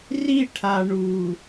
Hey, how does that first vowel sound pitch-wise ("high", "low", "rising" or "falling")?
falling